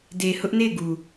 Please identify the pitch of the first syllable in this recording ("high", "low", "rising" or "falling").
low